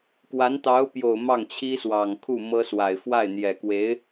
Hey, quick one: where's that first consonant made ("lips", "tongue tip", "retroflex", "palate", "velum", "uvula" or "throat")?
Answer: velum